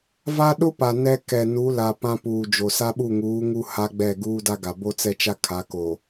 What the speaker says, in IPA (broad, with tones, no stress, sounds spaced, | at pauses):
v a˦ ɗ ʊ˦ p a˨ n ɛ˦ k ɛ˨ n u˨˦ l a˨ p ã˦ p uː˨ d͡ʒ o˨ s a˦ ɓ u˦˨ ŋ uː˨˦ ŋ u˦ h a˦ ɡ͡b ɛ˦˨ ɡ uː˦ d a˦ ɡ a˨ b o˦ t͡s ɛ˦ t͡ʃ a˦ kʰ a˨˦ k o˨